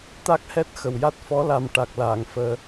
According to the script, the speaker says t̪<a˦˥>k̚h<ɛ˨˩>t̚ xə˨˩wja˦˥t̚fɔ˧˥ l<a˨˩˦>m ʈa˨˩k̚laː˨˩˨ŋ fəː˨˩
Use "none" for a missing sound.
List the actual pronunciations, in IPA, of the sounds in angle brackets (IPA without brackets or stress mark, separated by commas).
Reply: a˦˥, ɛ˦˥, a˨˩